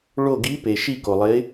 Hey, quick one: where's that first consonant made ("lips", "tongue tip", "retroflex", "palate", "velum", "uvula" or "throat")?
retroflex